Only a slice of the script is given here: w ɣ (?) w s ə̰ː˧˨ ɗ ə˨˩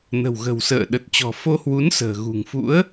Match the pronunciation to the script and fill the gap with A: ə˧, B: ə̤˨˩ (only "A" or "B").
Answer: B